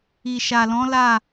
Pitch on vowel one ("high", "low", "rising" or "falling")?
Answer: low